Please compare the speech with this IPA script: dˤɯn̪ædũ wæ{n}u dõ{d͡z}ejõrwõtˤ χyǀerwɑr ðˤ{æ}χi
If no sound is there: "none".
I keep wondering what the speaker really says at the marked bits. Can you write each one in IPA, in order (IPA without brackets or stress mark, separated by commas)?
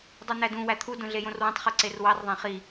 t̪ʰ, ɮ, æ̃